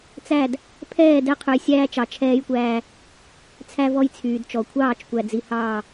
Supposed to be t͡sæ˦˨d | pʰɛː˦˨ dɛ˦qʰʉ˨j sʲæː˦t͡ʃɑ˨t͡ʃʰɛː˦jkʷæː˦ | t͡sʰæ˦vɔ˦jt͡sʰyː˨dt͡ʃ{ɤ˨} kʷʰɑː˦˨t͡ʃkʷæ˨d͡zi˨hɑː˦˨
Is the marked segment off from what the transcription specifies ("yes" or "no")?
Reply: yes